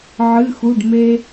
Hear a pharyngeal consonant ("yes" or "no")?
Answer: yes